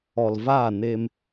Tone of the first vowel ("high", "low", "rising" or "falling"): low